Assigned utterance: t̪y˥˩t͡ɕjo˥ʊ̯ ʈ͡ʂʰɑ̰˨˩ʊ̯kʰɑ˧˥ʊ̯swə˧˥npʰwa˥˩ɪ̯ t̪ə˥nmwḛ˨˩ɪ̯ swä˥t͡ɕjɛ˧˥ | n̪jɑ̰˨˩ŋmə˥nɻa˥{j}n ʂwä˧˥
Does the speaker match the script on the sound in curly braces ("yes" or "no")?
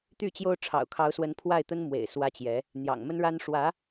no